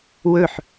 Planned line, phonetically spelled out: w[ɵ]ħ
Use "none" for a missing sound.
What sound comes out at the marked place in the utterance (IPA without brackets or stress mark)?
ɵ